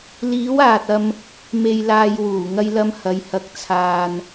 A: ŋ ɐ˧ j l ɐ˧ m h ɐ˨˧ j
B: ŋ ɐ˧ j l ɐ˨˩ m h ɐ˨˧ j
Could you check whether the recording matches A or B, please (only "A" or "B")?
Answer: A